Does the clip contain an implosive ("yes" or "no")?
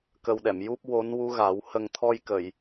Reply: yes